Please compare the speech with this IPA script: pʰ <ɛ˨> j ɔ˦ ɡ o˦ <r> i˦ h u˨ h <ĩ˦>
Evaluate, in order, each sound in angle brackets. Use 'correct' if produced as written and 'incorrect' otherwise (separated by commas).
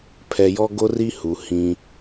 correct, correct, correct